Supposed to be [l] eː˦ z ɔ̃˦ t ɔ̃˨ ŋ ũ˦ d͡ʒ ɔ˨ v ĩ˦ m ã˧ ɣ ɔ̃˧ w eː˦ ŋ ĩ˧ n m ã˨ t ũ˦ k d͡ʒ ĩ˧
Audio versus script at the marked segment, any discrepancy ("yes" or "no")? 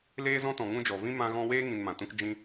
no